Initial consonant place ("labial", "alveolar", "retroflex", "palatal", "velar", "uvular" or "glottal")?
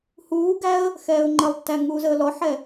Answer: glottal